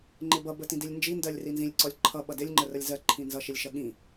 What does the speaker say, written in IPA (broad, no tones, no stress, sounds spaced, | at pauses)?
ŋ͡ǃ ɪ b ʌ b ə t ĩ d i lʲ n d͡ʒ i n d ɜ lʲ r i n z ĩ lʲ ǀ ɔ lʲ ǃʰ ʌ ɓ ʌ d ɪ lʲ ŋ͡ǃ ə r ə lʲ z ɜ ǃʰ ĩ n z ʌ ʃ ɪ lʲ ʃ ʌ ɠ ĩ